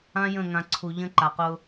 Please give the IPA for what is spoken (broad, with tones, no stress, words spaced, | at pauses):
ã˦jə̃˦˨ŋã˨ ǀʰu˨ʎə̃˦ ǃa˨qʊ˦